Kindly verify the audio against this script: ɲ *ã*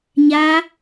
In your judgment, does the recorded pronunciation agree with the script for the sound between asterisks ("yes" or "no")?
no